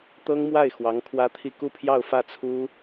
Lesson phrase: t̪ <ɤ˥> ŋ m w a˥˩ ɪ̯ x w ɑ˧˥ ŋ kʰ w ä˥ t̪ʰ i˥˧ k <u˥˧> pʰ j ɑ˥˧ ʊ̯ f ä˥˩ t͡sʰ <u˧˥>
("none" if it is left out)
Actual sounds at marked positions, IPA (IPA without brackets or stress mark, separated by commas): ɤ˥, u˥˧, u˥